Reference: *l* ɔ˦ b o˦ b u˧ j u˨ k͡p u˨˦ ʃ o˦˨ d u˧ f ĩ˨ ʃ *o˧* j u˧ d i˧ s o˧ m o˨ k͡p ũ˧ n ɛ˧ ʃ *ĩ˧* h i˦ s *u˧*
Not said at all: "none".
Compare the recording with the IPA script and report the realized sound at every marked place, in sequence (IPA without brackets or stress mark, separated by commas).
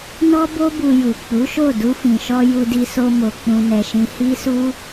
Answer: n, ɔ˧, ĩ˧, u˦